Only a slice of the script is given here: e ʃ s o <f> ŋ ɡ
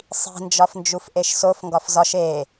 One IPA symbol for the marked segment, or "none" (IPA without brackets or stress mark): f